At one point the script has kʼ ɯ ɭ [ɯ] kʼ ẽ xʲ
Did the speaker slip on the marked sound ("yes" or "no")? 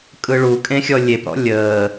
yes